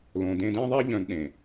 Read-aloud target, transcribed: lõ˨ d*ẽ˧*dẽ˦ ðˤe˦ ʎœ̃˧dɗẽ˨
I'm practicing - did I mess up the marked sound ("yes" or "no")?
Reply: no